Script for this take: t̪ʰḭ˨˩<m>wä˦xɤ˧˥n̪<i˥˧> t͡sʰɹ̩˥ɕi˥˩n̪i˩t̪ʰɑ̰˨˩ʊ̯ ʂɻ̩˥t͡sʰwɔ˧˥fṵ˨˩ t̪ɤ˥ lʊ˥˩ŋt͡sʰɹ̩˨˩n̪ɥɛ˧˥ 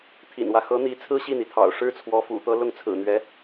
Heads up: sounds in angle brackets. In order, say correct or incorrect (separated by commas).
incorrect, incorrect